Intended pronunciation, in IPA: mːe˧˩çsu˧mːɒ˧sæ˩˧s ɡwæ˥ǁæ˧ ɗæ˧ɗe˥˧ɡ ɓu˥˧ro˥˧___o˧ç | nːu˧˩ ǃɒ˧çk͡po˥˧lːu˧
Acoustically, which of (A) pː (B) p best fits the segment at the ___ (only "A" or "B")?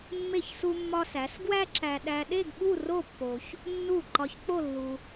A